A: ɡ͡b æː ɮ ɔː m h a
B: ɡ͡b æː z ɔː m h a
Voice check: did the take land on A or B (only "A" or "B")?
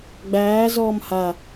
B